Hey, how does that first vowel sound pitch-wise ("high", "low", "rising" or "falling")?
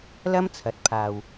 high